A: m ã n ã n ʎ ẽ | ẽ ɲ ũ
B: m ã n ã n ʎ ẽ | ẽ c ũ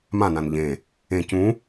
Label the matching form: B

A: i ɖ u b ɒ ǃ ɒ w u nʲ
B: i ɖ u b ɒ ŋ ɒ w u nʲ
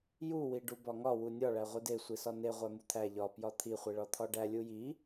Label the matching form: B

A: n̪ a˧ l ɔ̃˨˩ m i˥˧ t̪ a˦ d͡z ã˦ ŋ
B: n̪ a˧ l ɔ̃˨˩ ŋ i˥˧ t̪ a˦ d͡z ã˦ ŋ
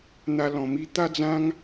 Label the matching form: A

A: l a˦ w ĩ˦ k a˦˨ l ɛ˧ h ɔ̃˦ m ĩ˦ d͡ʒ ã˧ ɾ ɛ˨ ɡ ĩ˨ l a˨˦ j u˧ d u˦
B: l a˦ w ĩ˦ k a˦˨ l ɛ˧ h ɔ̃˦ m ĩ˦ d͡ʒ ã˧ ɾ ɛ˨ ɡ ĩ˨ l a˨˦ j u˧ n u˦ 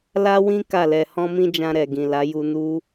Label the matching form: B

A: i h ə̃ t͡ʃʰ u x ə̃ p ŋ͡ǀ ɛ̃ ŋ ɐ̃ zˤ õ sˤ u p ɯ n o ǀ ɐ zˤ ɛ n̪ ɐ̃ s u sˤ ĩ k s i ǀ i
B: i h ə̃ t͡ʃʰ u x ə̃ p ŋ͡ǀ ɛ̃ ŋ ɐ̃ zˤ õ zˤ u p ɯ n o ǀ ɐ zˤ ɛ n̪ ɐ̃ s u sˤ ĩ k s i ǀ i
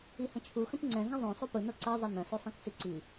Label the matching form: A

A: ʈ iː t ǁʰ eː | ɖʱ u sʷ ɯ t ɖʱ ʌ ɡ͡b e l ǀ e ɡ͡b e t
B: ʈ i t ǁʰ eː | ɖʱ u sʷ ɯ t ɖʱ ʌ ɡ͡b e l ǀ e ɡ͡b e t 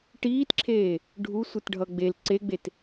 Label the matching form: A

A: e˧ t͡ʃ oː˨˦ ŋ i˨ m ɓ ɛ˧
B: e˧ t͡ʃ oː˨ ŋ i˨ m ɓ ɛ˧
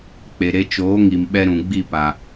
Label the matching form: A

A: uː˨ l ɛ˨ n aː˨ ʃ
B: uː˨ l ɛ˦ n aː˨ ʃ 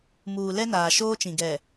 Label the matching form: B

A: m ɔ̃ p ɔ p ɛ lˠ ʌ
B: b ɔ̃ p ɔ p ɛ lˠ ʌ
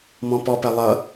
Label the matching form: A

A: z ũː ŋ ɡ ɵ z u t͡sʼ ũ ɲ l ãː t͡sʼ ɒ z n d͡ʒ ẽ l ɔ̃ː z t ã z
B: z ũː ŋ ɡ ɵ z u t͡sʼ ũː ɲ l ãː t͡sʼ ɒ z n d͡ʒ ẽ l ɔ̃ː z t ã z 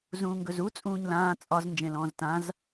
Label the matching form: B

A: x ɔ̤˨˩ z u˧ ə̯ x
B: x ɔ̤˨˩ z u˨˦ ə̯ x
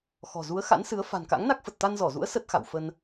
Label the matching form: B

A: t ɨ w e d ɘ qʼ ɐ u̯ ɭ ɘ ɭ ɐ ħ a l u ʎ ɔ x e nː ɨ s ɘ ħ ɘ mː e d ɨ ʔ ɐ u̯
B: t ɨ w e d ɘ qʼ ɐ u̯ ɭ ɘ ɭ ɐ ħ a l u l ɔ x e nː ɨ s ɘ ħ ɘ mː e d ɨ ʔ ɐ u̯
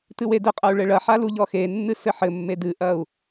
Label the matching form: A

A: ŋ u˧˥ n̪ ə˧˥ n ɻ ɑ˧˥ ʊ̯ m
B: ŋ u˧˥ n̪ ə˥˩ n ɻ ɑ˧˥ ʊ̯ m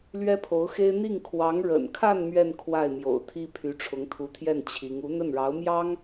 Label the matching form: B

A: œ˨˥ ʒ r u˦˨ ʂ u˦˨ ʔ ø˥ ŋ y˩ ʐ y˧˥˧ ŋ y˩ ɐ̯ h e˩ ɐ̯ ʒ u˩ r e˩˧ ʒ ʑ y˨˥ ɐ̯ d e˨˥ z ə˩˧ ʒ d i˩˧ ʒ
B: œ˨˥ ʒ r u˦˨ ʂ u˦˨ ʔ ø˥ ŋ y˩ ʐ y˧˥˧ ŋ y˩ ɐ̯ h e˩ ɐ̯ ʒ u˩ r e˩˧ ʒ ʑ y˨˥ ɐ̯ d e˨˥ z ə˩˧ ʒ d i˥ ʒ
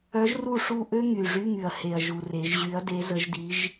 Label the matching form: A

